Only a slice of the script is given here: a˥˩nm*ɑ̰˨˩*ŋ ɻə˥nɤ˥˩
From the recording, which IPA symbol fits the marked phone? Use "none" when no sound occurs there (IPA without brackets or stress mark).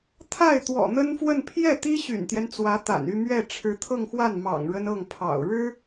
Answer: ɑ̰˨˩